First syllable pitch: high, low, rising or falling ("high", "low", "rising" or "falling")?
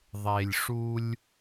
low